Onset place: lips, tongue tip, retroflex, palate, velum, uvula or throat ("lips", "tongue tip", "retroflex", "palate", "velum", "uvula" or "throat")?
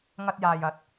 velum